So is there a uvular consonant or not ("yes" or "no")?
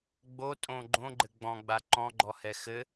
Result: no